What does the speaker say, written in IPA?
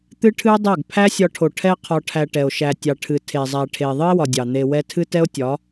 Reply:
t̪ ɨ˦ ʈʰ ɨ˦ o̯ dˤ æ˦˨ ɡ pʰ æ˦ sʲ ɒ˧ ʈʰ o˨ ʈʰ ɛ˦ qʰ ɒ˧ ʈʰ æ˧ ʈ ɛ˨ o̯ ʃ æ˨ tʲ ɑ˨ ʈʰ ɨ˨ tʰ e˨ zˤ æ˨ ʈʰ e˨ ðˤ ɨ˦ e̯ w ɒ˨ dʲ ɑ˨ n̪ e˧ w ɛ˦ tʰ ɨ˦ t ɛ˦ o̯ tʲ ɒ˨˦

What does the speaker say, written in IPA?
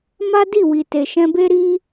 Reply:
m a˦ d i˦˨ w i˨ t e˨ ʃ ɛ̃˧ b e˦ ɾ i˦

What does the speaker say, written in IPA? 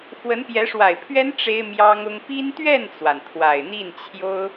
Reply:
x w ə˧˥ n p j ɛ˧˥ ʂ w a˨˩ ɪ̯ pʰ ɥ ɛ˥ n ʈ͡ʂ e˥ ɪ̯ m j ɑ˥ ŋ ʊ˥ ŋ p i˥ n t̪ ɥ ɛ˥˩ n t͡s w a˩ n t̪ʰ w a˨˩ ɪ̯ n̪ i˥˩ n t͡ɕʰ j o˥ ʊ̯

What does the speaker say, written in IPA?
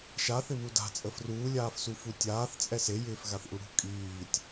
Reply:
ʃ a θ ɪ β u d a̤ t͡sʼ ə f r uː lʲ aː f s u f u tʲ aː θ t͡sʼ ɛ s e j ɪː f ɣ a θ ʔ u ɽ ṳ kʼ iː tʲ

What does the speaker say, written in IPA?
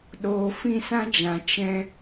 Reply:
ɗ oː˧ f ĩ˦˨ s ã˦ d͡ʒ ã˨ t͡ʃ ɛ̃˧

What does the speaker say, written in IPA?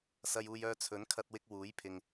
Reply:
s ɐ˧ j uː˧ j œː˧ t͡sʰ ɵ˨˥ n kʰ ɐ˧ t̚ w ɪ˧ k̚ w uː˨˥ j pʰ ɪ˨ ŋ

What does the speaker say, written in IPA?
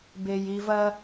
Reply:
b e j i v ɐ

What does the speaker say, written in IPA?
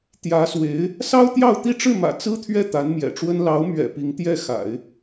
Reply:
t̪ j ä˧˥ s w e˧˥ ɪ̯ | s ɑ˥ ʊ̯ t̪ j ɑ˥˧ ʊ̯ t̪ i˥˧ ʈ͡ʂ ɻ̩˥˩ m ä̰˨˩ t͡s ɹ̩˥ t̪ʰ ɥ ɛ˥˩ t̪ a˧˥ n m j ɛ̰˨˩ ʈ͡ʂ w ə˥ n l ɑ˧˥ ʊ̯ m ɥ ɛ̰˨˩ p i˧˥ ŋ t̪ j ɛ˥˩ x a̰˨˩˦ ɪ̯

